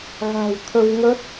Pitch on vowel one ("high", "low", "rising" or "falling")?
low